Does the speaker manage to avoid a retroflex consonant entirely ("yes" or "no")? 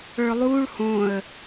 no